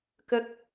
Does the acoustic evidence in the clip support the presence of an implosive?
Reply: no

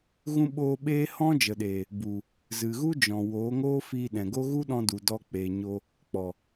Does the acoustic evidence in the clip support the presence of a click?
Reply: no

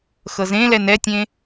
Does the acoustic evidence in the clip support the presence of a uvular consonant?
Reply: no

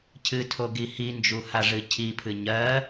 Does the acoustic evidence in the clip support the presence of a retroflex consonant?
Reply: yes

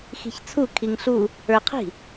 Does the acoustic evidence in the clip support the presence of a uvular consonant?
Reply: yes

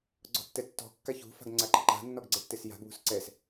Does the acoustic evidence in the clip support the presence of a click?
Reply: yes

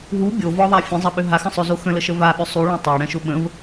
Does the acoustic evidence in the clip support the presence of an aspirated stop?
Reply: no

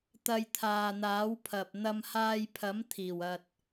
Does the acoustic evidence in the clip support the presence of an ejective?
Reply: no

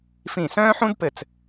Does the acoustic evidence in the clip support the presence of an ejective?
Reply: no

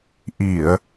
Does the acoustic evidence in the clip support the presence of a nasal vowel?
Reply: no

